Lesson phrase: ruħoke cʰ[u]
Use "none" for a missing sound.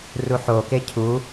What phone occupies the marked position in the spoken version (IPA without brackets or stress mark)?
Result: u